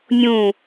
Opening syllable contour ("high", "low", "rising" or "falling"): falling